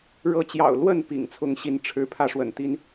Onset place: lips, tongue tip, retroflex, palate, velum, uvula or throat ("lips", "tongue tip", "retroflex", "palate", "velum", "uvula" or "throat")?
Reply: retroflex